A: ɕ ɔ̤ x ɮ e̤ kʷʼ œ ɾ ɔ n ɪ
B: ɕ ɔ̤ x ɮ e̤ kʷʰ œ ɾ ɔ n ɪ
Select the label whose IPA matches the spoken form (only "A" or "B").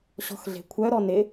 B